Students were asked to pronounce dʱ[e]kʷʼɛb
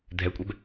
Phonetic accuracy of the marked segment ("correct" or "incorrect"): incorrect